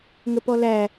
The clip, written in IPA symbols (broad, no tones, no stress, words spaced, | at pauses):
ŋəpɔlæ